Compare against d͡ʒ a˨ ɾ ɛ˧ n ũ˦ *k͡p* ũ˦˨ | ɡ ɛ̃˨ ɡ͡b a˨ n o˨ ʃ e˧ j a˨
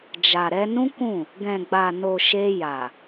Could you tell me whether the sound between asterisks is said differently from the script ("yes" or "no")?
yes